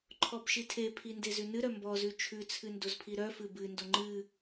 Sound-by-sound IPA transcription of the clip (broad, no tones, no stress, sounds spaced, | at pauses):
ǃʰ ɔ b ʃ i tʰ e pʰ i n d e z ʉ n ɨ ɾ œ m b ɔ z ʉ t͡ʃʰ ʉ t͡sʰ ɨ n d o z pʰ i ɾ œ f ɨ b ɨ n d o ŋ͡ǃ ɨ